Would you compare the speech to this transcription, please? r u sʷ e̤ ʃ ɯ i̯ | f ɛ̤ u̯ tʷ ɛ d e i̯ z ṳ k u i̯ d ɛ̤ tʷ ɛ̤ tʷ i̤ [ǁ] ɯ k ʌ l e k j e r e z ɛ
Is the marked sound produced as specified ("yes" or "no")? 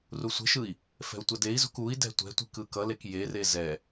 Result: no